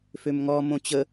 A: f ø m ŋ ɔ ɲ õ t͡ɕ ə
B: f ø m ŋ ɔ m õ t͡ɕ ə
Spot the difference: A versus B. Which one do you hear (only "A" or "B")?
B